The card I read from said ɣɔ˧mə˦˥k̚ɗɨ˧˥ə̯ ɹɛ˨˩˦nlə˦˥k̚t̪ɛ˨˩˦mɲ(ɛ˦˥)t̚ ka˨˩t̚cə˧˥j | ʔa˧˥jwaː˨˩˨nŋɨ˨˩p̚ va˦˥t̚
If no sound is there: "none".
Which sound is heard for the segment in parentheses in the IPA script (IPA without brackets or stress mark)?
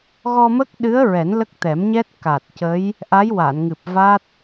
ɛ˦˥